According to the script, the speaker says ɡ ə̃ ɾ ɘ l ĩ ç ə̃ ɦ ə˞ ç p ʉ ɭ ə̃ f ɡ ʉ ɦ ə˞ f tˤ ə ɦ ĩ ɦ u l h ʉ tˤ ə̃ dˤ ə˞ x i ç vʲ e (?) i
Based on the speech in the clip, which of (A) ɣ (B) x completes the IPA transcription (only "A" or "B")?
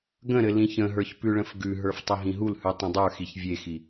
B